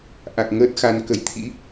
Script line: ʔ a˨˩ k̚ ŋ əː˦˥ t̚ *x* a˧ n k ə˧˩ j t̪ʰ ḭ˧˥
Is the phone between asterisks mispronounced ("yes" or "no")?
no